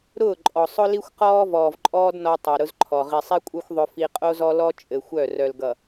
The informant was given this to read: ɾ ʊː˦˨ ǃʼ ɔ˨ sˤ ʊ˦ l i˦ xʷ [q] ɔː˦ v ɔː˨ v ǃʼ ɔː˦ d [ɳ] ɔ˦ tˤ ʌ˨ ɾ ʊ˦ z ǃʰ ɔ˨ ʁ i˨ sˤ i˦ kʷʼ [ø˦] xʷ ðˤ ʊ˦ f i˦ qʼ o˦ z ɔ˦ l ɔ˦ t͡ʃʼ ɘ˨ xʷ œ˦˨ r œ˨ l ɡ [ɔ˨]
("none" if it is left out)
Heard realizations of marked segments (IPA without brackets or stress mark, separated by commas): q, n, œ˦, ʌ˨